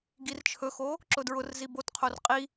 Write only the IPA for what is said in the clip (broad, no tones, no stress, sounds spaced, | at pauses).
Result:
ɡ i r t͡ʃʰ ɵ x o | ǁ ʊ d ɹ ʊ r z i b o t qʰ o r qʼ i